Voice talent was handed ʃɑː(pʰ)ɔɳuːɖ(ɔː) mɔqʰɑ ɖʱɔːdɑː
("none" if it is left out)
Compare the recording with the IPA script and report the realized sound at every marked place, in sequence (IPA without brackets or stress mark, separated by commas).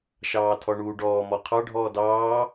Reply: tʰ, ɔː